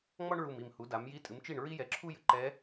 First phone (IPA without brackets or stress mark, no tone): ŋ͡m